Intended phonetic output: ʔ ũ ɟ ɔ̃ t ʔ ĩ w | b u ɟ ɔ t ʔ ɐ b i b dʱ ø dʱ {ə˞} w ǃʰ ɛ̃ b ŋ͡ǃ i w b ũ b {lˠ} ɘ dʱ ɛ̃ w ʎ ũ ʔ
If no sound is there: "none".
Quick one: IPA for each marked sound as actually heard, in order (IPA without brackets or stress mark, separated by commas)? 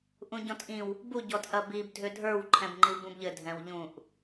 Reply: ə˞, ʎ